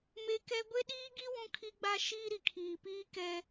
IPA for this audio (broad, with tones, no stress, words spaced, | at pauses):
me˦kɛ˦ ɡʷe˦ɗiː˦ɡi˦ wũ˦kʰi˦ ɡ͡ba˦ʃiː˦ ɾi˨kʰiː˨piː˦ kɛ˦